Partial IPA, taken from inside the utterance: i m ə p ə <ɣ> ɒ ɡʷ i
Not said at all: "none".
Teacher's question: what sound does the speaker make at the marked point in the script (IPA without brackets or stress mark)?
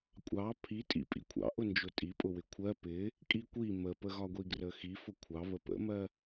ɣ